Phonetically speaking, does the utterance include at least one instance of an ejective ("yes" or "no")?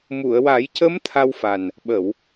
no